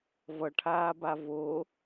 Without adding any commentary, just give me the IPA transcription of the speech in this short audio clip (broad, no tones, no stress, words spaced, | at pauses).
vʌʈʰaːba vo